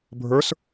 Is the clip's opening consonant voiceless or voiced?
voiced